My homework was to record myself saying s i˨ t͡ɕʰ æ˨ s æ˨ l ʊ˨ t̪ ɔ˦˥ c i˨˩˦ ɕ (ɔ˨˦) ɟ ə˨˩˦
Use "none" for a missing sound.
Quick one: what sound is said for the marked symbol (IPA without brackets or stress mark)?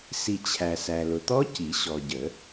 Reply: ɔ˨